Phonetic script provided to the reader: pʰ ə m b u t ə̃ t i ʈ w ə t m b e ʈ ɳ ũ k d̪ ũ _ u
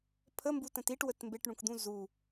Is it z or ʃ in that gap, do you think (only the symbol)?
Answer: z